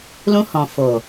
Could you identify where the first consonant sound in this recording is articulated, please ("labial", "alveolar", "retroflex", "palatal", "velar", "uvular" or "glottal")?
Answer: alveolar